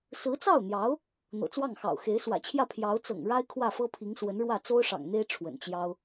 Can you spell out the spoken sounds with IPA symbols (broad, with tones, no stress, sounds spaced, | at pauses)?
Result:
s ɹ̩˧˥ t͡s ɑ˥˩ ʊ̯ n̪ j ɑ˧˥ ʊ̯ | n̪ ɤ̰˨˩ t͡s w ɑ˥˩ ŋ x ɑ̰˨˩ ʊ̯ x e˧˥ ɪ̯ s w ä̰˨˩ t͡ɕʰ j ä˥˩ pʰ j ɑ˧˥ ʊ̯ t͡s ɤ̰˨˩ ŋ ɻ a˥ ɪ̯ kʰ w ä˥˩ f ɤ˥ pʰ i˧˥ ŋ s w ə˧˥ n ɻ w ä˥˩ t͡s o˥ ʊ̯ ʂ ɑ̰˨˩ ŋ n̪ e˥ ɪ̯ ʈ͡ʂʰ w ə̰˨˩ n t͡ɕ j ɑ˥ ʊ̯